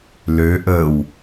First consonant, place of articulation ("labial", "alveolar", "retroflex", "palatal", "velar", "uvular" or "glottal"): alveolar